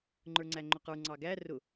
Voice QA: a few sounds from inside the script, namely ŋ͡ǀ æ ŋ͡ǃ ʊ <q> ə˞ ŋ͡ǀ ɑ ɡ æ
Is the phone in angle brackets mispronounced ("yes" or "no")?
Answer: no